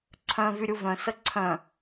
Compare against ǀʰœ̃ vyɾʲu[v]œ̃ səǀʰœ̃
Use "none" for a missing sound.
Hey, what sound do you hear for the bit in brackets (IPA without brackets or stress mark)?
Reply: v